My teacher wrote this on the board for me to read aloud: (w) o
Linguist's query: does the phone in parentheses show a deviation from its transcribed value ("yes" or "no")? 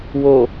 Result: no